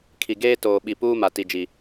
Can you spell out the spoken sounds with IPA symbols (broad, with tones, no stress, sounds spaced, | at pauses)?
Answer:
kʰ i˨ ɡ eː˦ t oː˨ ɓ i˨ p uː˦ m a˨ t i˨ d͡ʒ i˨